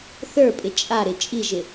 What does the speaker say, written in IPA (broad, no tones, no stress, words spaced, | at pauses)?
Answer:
θə˞pʼɪ t͡ʃʼaɾɪ t͡ʃʼiʒɪ